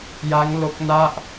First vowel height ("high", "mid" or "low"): low